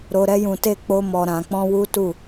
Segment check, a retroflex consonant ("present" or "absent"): absent